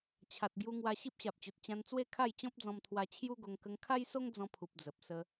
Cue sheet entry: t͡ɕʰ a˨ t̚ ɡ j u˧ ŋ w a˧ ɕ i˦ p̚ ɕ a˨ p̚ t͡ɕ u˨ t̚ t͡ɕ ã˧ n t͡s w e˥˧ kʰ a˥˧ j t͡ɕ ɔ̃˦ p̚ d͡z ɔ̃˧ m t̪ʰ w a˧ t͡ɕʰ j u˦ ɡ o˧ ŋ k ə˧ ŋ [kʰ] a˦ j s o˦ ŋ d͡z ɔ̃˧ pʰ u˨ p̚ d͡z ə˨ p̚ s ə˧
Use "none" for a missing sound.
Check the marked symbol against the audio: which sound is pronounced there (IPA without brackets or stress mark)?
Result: kʰ